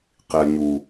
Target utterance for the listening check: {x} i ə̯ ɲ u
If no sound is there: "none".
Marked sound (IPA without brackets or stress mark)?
q